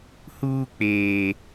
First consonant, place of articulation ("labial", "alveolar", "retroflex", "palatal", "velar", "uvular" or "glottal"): glottal